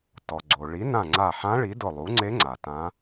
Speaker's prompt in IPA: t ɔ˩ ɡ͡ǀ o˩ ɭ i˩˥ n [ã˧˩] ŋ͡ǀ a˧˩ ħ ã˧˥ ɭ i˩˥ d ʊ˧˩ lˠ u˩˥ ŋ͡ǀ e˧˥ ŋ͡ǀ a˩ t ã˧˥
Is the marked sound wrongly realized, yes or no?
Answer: no